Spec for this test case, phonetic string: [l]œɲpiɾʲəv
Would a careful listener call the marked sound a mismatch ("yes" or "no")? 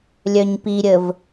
yes